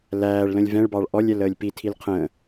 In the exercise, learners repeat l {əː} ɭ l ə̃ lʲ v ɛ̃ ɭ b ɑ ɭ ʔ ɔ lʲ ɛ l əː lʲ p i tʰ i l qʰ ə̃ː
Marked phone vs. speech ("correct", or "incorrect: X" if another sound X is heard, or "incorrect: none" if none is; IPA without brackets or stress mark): incorrect: æː